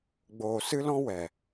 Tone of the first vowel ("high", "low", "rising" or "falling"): low